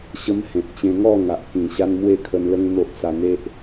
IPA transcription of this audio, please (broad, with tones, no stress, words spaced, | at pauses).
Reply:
ɕə˦mhẽ˨t̚t͡ɕẽ˧ ŋɔ˥˧ ŋa˨ʔkĩ˨˩ɕa˦n mwe˥˧kʰə˧nlə˦ŋ n̪o˦ʔt͡sa˧n̪e˦ʔ